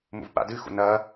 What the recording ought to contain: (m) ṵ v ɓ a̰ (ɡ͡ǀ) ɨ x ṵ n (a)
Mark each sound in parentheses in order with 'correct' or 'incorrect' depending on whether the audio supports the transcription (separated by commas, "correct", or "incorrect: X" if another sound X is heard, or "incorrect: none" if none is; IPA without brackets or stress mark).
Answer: correct, incorrect: d, incorrect: ɐ